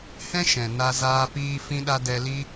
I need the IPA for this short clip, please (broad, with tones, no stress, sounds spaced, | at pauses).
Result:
h ɛ̃˦ ʃ ɛ̃˨ n a˧ z aː˧ p iː˧ f ĩ˧ ɗ a˧ d ɛ˧ l i˦